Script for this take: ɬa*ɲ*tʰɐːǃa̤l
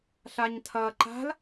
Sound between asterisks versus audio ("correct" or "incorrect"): correct